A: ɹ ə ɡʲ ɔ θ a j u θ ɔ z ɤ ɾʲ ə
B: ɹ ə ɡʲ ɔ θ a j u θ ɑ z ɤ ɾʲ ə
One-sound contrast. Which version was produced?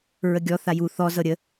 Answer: A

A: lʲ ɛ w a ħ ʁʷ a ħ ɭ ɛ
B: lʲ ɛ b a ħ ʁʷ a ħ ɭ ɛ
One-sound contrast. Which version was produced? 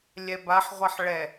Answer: B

